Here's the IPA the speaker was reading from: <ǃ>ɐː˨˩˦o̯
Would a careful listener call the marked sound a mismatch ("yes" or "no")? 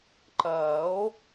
no